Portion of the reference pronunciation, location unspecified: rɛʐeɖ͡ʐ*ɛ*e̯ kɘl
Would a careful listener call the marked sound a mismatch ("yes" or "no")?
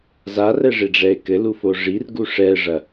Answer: no